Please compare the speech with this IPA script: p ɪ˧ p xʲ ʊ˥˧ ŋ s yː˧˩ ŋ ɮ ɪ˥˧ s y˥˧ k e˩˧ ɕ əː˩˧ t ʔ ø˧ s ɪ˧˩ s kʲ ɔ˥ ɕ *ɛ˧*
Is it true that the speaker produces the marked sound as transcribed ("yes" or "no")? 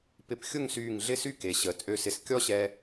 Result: yes